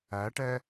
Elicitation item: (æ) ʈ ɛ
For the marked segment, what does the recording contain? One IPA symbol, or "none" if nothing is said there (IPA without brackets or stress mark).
æ